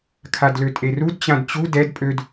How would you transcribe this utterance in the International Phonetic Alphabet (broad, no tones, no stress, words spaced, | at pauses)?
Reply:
kʰadløtʼerud t͡ɕãdt͡ɕu dɛd pʼød